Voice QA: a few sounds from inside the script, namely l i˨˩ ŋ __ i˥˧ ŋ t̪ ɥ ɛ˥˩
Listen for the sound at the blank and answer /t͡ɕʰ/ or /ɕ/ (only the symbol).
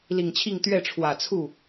t͡ɕʰ